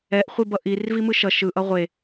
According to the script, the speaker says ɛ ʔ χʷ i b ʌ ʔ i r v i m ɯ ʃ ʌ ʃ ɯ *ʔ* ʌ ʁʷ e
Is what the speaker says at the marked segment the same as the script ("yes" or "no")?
yes